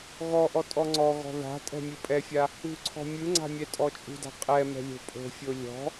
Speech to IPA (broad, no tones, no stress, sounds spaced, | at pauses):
ɣ ɔ ʔ ɔ tʼ ɔ ŋ͡ǀ ɔ ɣ ɔ̤ ð a̤ tʼ ɛ̤ mʲ ɯ pʼ ɛ fʲ a | ṳ ǀʰ ɔ̤ mʲ ɯ ŋ͡ǀ a̤ mʲ ɛ tʼ ɔ t͡ʃʼ ṳ d a̤ qʼ ɛ m ɛ̤ lʲ o̤ pʼ o̤ fʲ o lʲ ɔ̤